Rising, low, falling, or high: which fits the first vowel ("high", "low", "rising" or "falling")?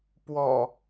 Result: low